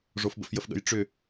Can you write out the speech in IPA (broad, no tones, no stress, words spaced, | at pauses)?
ʐofbə̰fjəfɠə̰j ʈ͡ʂʏ